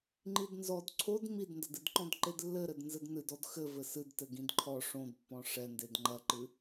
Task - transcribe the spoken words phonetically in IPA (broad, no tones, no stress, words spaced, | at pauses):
ŋ͡ǃidnzɔd ǀʰod midndɐdɨdǃɔ̃d ǃedlːɘɾɘd nzɘdnɨd ɔdxɘ vɘsɨd tɘɡĩdǃʰɔ ʂõdpːɔ̃ ʂɛnded ŋ͡ǃɐǃɨ